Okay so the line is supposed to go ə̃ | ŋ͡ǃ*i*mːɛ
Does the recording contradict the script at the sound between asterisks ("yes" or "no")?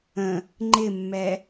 yes